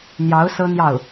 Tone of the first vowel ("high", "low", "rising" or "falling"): rising